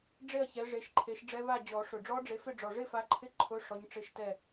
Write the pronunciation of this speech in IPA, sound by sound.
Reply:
ɖ͡ʐ e˥˨ ɐ̯ ç ɛ˨˦ ʐ e˨˦ ʃ ǃʰ e˨˦ ʃ ɖ͡ʐ ɛ˦˥ β a˥˨ d͡ʑ ɔ˨˩˦ ʂ ʊ˨˩ ɖ͡ʐ ɔ˦˥ ɖ͡ʐ e˨˦ f ɪ˥˨ ɖ͡ʐ ɔ˨˩ ʐ ɪ˥˨ f a˨˦ ǃʰ ɪ˧˥˧ ǃʰ ʊ˧˥˧ ʂ ɔ˨˦ ɲ ʈ͡ʂ ɪ˧˥˧ ʃ t ɛ˥˨

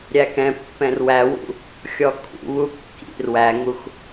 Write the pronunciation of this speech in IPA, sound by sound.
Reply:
ɾʲ æ k ɛ̃ pː ɛ̃ r w æ w ṵ | xʲ ɔ kʼ ṵ β u kː ḭ r w æ ŋ u x

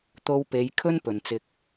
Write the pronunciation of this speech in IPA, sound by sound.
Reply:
t̪ o˧ w p e˨˧ j kʰ ɵ˥ n p ɵ˨ n t͡s ɪ˧ k̚

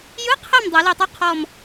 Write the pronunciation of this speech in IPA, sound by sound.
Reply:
j ɯ˧˥˧ qʰ ɛ˦˨ m dˤ ɛ˨˩˦ l e˦˨ tˤ o˥ qʰ ɔ˦˨ m

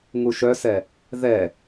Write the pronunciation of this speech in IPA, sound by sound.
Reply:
ŋ u ʃ œ s ɛ | ð ɛ

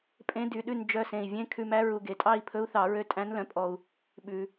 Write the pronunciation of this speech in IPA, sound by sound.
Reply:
pʼ ẽ˧˥ d y˨˩ ɗ ʉ˥˨ n d͡ʒ œ˧ s ẽ˨˩ i̯ vʲ ẽ˧˥˧ kʰ ʉ˧ m æ˧˥ ɹ u˨˩ ɡ e˨˩ tʼ ɑ˥˨ i̯ pʰ ɵ˧˥ u̯ θ ɑ˨˩˦ ɹ ø˧ tʼ æ̃˧˥ n l œ̃˨˩ pʼ ɔ˨˩ u̯ | ɓ ʉ˨˩˦

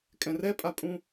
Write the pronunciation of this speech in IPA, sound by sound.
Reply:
kʼ ɛ̃ r ɛ pʼ a pʼ ũ

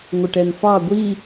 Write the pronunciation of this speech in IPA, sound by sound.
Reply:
ŋʷ ə ʈ ɛ n f ɑ ɡʷ i

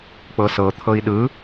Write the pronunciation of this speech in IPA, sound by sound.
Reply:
k͡p ɤ s ɤ t̪ʰ ɤ i̯ ɗ ɯ

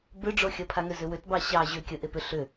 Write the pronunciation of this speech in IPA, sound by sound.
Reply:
b ʏ ɖ͡ʐ o xʲ ə pʰ a ŋ ʏ z ʏ w ʏ t b ɑ ɕ ɑ ʑ ʏ kʲ ə ʔ e p ʏ ɬ ʏ

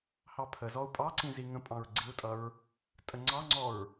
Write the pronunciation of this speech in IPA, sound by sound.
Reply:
h ɑ pʰ ə z ɔ u̯ pʼ ɑ ǀ ĩ z i ŋ ə̃ pʼ ɑ̃ ɹ ɡ͡ǀ i u̯ tʼ ʌ ɹ | tʼ ə ŋ͡ǀ ɑ ŋ͡ǀ ɔ ɹ

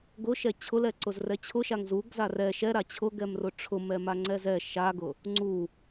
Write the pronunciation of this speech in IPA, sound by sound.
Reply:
ɡ ʊ ʃ ɛ t͡ɕʰ ʊ l ɛ ǀ ʊ z r ɛ t͡ɕʰ ʊ ʃ a ŋ z u ɡ z a r ɛ ʃ ɛ ɾ a t͡ɕʰ ʊ ɡ ɛ m r ʊ ʈ͡ʂʰ ʊ m ɛ m a ŋ͡ǀ ɛ z ɛ ʃ a ɡ ʊ | ŋ͡ǀ u

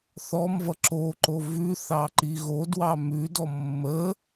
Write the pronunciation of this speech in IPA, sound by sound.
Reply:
θ ɔ m v ʌ ǁ o ǃ o v ʉ θ ɑ ǃ i ɣ o d w ɑ m ʉ d ɔ mː ə

